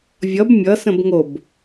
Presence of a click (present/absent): absent